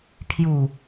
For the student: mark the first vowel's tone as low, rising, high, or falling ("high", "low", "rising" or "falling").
low